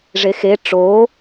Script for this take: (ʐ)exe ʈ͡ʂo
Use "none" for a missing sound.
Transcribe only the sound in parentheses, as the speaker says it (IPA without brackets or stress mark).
ʐ